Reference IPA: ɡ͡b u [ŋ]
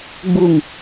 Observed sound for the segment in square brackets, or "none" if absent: ŋ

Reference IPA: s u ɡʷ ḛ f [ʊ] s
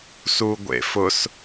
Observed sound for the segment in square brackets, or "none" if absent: ʊ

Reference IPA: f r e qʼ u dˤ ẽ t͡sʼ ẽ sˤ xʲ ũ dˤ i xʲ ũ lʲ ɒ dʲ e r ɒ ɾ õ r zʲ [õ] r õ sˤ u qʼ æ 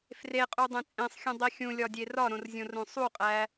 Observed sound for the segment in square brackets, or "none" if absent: õ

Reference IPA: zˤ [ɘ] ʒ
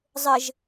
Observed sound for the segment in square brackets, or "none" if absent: ɘ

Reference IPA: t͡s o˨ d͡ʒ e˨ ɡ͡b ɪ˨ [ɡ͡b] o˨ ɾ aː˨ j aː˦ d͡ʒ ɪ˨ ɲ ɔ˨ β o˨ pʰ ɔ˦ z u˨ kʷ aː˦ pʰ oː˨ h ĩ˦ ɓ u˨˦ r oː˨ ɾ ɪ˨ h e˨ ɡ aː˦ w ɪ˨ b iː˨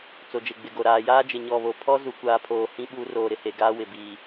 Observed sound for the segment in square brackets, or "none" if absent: ɡ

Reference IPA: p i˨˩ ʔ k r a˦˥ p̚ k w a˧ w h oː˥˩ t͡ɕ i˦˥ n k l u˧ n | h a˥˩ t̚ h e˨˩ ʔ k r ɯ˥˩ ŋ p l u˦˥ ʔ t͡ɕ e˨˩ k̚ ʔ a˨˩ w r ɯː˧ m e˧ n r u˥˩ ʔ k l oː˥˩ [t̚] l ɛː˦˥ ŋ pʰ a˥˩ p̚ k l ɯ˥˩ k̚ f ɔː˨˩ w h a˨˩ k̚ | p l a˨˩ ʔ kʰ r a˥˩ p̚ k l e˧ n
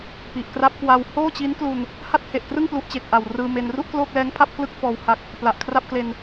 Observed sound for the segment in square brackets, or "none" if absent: k̚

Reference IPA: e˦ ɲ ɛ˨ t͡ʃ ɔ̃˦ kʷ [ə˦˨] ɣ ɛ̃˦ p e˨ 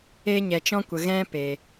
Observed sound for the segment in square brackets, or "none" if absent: ə˨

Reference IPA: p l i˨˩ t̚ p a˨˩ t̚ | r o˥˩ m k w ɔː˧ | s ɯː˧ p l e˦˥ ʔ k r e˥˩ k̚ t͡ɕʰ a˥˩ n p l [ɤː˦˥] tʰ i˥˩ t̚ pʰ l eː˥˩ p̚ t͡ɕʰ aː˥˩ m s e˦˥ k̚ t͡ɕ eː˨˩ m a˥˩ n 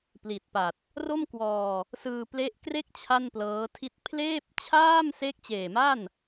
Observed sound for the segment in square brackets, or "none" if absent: ɤː˦˥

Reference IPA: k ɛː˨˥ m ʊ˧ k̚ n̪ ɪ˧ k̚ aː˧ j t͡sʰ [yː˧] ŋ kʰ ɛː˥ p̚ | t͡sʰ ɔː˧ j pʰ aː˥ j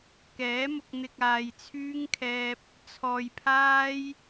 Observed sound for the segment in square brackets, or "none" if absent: yː˥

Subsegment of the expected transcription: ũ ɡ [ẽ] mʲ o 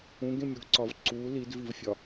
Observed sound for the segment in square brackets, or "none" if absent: ẽ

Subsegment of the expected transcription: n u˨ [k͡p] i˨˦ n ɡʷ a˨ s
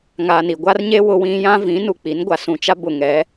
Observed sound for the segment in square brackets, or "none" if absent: k͡p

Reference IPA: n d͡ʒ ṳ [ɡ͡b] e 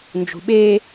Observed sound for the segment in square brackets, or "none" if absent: ɓ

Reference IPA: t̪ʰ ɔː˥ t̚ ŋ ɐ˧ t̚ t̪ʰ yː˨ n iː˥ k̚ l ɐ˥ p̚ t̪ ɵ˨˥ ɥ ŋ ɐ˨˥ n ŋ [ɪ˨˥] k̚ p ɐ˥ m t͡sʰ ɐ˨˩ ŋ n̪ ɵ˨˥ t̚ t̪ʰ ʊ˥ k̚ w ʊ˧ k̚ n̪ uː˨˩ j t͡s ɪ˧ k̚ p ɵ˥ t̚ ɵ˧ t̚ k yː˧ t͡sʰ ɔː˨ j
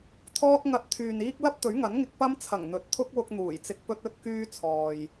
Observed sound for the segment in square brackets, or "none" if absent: ɪ˧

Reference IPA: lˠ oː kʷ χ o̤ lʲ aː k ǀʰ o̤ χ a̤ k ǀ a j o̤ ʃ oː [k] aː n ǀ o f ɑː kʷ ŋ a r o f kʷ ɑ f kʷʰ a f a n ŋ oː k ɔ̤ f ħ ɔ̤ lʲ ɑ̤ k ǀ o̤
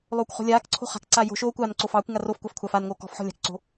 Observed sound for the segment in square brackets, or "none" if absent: kʷ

